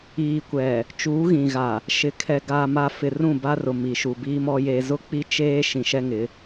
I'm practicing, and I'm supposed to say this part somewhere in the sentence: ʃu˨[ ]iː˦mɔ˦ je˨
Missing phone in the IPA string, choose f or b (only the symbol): b